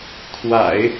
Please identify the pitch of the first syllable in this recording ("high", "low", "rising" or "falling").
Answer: low